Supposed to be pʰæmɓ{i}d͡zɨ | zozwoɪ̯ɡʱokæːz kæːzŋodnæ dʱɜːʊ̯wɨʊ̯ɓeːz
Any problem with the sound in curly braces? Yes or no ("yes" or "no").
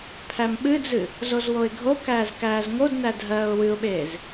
yes